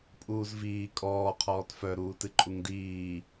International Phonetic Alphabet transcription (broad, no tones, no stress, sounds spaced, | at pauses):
pʼ uː z v iː kʼ ɔː qʰ ɔː t f œ ɾ uː t ɨ ǃʼ u ŋ d iː